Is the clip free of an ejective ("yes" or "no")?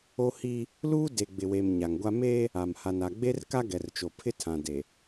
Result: yes